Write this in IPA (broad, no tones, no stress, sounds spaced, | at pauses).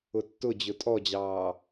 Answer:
ʊ tː ʊ d͡ʑ ʊ tʼ ɔ d͡ʑ ɑː